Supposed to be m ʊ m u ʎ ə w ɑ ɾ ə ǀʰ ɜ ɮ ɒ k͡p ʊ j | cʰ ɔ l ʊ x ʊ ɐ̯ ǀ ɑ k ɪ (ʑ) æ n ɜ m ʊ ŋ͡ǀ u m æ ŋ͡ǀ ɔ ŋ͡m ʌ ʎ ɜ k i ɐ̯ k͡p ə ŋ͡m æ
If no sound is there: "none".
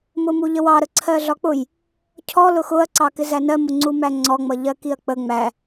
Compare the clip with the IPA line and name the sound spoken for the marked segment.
z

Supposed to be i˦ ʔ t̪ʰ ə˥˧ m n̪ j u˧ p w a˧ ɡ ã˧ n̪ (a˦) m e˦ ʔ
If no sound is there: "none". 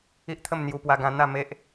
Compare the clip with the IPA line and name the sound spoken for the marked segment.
a˥˧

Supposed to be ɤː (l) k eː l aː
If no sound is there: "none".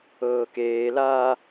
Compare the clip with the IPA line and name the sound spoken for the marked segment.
none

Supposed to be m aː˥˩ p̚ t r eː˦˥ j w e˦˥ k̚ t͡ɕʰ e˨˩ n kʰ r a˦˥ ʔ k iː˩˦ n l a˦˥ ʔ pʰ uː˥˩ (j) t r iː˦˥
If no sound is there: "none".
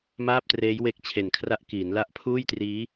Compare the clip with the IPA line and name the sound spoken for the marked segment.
j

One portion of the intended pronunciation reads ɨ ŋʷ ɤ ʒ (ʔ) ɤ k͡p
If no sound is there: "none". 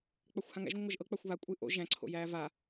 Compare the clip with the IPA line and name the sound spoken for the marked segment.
ʔ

